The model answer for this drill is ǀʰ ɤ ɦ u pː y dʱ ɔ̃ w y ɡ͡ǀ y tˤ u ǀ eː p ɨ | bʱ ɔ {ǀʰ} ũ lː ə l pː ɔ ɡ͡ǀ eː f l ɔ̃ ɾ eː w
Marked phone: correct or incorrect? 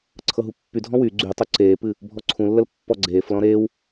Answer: correct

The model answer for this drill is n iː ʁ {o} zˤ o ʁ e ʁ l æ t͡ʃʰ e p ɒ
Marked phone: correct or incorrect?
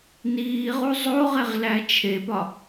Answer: incorrect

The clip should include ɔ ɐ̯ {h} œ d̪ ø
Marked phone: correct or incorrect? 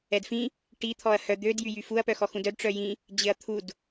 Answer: correct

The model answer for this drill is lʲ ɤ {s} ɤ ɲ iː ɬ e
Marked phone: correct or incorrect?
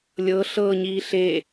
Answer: incorrect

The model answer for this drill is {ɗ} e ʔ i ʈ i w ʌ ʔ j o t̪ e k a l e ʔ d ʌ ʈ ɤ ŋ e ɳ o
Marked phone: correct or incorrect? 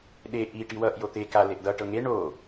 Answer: correct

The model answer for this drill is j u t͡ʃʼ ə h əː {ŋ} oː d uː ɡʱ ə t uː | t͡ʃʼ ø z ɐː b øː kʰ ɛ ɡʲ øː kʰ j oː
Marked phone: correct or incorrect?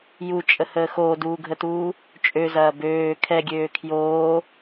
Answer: incorrect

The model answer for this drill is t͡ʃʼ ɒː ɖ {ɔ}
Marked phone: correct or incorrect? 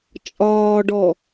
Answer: correct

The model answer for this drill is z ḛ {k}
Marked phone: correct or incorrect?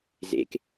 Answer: correct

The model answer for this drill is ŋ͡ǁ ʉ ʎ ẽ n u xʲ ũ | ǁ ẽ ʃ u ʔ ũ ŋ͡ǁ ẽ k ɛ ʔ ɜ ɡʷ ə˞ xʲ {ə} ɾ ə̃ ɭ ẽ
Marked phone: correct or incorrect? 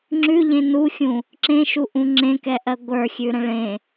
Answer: incorrect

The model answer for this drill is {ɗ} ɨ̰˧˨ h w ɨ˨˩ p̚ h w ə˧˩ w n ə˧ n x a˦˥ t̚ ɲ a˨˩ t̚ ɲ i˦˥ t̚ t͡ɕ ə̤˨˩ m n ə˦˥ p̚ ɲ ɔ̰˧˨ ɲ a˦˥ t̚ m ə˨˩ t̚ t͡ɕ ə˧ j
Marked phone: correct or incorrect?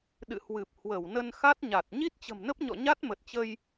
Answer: correct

